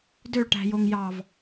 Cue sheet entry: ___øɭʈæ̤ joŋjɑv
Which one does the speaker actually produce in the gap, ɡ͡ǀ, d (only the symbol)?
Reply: d